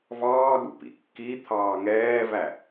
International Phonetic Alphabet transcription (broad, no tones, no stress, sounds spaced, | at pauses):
v ɑː ɠ ṵ p ḭ kː i t̪ʰ ɑː ŋ ɛː v æ